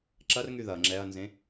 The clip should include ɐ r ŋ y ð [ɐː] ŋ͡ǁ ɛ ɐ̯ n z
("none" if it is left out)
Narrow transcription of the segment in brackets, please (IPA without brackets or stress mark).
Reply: ɐ